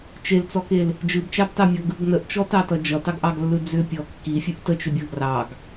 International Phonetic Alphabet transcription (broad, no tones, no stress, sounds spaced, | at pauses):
t͡ʃ e l t͡s ɔ k e l | d͡ʒ ɯ b t͡ʃ ɑ b t ɑ mʲ ɔ ɡ ɯ ɡ n ə ʔ t͡ʃ ɔ t ɑ t ʌ d͡ʒ ʌ t ɑ ɡ ʔ ɑ ɡ lː ɯ d͡z ʏ pʲ ɔ kː i fʲ ɯ ʔ t ə t͡ʃ ʏ bʲ ʌ ɡ r ɑ ɡ